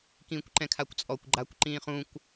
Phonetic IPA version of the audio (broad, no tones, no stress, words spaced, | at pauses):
kĩːkʷǃɛ̃kʰakʷt͡sʼɔkʷ ɡ͡ǃakʷ ǃĩːχũkʷ